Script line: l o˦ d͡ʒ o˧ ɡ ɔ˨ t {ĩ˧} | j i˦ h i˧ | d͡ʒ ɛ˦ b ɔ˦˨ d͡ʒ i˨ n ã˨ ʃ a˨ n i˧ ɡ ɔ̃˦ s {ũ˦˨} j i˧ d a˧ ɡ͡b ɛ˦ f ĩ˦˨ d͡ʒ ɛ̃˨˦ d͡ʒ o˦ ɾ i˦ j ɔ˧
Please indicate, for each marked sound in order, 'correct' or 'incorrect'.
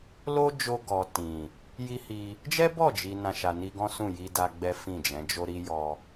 incorrect, correct

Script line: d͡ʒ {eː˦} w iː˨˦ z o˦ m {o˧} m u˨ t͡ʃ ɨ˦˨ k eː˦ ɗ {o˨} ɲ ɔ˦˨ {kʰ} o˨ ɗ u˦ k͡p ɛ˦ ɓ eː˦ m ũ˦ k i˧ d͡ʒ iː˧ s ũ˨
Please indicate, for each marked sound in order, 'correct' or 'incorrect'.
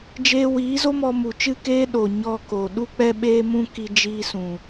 incorrect, incorrect, correct, incorrect

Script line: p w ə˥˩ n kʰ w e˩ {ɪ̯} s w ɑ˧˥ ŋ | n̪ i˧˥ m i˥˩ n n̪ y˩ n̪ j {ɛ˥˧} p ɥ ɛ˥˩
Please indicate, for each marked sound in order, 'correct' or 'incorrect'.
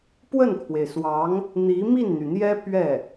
correct, incorrect

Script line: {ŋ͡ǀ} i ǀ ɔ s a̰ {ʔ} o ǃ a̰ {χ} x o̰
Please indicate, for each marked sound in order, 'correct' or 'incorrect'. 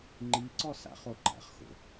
incorrect, incorrect, correct

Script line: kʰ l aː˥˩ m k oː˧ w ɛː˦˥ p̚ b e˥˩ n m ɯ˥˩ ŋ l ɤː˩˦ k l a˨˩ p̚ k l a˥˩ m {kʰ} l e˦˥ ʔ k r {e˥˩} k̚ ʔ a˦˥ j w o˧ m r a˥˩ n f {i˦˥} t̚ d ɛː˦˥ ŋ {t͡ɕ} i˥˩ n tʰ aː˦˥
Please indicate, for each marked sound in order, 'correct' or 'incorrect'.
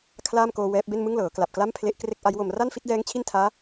incorrect, correct, correct, incorrect

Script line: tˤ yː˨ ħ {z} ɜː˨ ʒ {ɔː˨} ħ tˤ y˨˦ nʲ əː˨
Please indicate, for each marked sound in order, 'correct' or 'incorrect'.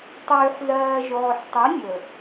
correct, correct

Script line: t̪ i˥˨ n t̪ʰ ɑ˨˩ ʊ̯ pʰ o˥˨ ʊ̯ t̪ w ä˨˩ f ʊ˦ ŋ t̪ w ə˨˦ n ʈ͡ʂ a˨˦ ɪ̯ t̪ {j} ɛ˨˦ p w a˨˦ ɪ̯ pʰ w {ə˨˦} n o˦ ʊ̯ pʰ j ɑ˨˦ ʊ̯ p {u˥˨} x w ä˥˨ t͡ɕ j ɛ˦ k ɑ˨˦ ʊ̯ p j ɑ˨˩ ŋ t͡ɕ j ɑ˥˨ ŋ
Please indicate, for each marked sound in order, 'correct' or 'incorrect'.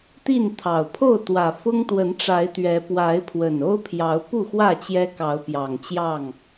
incorrect, incorrect, correct

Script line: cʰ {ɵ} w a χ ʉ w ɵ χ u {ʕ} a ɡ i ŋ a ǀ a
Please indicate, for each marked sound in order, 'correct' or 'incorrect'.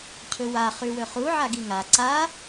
correct, correct

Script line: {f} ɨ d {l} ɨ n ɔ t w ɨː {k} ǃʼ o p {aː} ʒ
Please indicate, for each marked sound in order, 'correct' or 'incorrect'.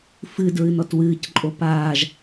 correct, incorrect, incorrect, correct

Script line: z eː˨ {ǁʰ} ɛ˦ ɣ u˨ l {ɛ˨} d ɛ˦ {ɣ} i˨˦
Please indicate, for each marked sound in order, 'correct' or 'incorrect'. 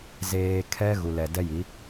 incorrect, correct, incorrect

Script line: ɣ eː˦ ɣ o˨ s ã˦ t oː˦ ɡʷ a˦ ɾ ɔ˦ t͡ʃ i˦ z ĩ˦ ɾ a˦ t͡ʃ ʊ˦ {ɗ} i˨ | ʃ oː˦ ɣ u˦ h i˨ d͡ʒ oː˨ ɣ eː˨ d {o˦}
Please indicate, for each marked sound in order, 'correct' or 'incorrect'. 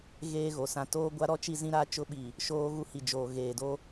incorrect, correct

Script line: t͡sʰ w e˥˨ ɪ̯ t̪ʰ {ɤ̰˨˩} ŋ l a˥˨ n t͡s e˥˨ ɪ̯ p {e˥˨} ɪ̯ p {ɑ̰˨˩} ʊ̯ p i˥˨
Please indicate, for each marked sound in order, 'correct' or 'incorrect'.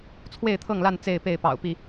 incorrect, correct, correct

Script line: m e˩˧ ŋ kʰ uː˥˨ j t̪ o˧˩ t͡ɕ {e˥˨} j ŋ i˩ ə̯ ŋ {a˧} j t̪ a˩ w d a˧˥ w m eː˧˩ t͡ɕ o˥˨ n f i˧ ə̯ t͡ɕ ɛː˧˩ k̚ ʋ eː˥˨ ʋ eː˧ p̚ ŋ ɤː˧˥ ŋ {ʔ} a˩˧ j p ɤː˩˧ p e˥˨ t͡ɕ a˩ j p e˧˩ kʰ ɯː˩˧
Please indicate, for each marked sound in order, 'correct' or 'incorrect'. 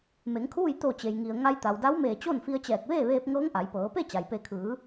incorrect, correct, correct

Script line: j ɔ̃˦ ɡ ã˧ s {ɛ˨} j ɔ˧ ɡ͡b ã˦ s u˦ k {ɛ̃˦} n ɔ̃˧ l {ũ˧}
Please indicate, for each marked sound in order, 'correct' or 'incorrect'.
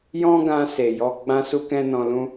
incorrect, correct, incorrect

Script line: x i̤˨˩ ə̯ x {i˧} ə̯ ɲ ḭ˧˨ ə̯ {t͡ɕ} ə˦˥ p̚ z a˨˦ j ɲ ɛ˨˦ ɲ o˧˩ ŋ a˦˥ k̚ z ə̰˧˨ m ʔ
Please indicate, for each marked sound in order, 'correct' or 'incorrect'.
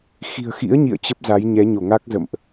incorrect, correct

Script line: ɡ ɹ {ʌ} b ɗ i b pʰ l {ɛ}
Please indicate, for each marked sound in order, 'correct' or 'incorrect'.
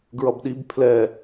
correct, correct

